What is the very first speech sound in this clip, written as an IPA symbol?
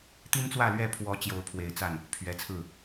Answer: t̪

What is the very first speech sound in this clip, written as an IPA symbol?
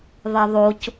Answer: ðˤ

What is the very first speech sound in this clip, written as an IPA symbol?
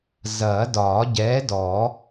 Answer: z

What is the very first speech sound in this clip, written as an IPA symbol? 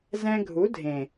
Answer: z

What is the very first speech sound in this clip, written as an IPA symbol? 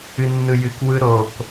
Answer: ɨ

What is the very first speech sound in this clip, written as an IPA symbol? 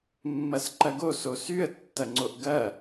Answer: mː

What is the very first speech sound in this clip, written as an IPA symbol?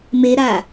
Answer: m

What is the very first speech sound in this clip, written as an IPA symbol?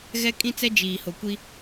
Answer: ɣ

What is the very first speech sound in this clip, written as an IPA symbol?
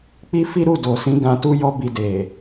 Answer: k͡p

